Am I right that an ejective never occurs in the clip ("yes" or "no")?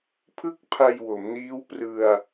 yes